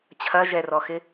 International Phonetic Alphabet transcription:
t͡ɕʰɐʒɛrɔxɪ

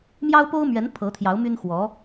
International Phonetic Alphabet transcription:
mjɑ˥ʊ̯po˥ʊ̯mɥɛ˧˥n pʰɤ˧˥t̪ʰjɑ˧˥ʊ̯ my˥nxwɔ˧˥

